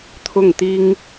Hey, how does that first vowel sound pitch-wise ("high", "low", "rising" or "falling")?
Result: falling